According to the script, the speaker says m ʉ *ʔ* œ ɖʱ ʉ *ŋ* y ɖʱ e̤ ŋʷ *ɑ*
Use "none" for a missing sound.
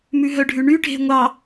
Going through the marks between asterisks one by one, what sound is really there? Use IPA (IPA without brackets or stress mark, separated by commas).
ɦ, ɳ, ɑ